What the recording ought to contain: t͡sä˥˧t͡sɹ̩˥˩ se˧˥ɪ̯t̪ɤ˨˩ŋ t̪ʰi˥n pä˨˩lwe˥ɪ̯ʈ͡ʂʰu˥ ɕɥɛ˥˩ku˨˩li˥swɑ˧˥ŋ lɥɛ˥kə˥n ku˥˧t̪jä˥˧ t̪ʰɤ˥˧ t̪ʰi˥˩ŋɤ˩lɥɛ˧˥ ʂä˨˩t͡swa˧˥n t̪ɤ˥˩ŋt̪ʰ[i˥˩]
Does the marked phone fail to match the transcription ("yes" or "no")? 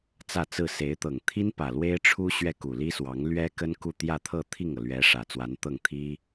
yes